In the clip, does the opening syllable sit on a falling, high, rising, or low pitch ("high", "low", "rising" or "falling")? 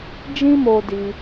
high